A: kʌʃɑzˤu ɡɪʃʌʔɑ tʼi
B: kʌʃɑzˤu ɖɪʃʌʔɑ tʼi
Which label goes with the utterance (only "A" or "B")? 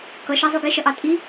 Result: A